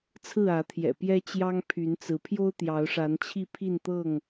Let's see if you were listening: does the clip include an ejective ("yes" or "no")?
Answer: no